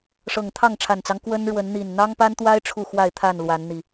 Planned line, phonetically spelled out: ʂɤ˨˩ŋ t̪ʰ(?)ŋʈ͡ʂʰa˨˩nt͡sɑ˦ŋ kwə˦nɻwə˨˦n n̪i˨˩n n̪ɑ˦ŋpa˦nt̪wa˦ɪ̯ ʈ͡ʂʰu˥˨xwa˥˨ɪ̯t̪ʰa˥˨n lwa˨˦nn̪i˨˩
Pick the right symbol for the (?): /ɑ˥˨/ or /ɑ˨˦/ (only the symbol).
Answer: ɑ˥˨